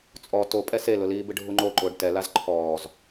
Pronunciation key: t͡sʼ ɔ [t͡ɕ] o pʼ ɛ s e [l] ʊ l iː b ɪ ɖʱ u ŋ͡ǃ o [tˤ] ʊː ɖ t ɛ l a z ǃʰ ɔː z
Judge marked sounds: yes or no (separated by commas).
no, yes, no